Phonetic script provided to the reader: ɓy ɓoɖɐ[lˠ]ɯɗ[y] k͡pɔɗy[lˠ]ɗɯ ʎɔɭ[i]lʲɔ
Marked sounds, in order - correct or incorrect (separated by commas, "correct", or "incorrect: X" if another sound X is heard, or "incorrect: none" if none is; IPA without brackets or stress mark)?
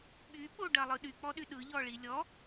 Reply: correct, correct, incorrect: none, correct